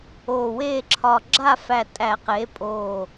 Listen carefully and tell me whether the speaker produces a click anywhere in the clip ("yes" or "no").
yes